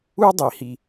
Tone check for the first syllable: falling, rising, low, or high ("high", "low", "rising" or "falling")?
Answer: high